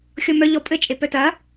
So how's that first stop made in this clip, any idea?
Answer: ejective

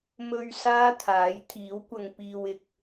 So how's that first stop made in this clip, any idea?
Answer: aspirated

